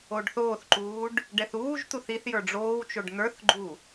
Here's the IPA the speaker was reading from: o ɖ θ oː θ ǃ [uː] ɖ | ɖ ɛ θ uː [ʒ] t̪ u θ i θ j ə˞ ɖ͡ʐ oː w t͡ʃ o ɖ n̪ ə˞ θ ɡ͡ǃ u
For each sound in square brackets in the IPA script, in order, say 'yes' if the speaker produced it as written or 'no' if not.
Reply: yes, yes

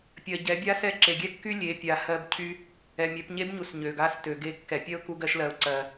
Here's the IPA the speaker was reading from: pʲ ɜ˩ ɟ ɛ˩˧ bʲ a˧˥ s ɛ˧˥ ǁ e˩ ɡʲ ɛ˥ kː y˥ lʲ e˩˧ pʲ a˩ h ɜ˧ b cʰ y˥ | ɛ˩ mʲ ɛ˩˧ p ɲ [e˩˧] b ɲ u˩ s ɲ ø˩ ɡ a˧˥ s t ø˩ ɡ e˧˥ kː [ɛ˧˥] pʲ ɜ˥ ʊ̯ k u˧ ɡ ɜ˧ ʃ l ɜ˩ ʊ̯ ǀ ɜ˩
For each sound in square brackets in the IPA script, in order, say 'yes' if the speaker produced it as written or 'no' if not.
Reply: no, no

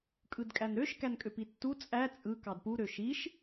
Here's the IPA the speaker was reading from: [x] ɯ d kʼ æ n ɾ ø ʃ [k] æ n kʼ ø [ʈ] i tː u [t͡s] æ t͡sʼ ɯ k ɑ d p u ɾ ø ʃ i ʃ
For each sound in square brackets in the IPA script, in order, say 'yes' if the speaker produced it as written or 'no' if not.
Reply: no, yes, no, no

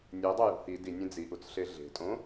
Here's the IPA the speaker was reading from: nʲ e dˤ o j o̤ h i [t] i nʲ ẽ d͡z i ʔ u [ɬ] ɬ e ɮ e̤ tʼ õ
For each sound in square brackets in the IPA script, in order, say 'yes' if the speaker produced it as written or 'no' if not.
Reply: no, no

